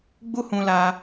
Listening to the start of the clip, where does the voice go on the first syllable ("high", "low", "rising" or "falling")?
high